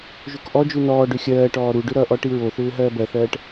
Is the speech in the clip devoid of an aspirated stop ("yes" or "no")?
yes